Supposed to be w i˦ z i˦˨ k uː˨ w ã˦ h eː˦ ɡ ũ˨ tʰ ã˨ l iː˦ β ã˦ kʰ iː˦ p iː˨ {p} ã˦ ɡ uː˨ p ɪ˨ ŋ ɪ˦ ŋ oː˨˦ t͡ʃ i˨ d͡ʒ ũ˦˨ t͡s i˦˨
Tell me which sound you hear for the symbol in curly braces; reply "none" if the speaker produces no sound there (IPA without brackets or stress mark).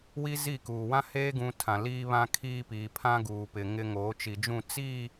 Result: pʰ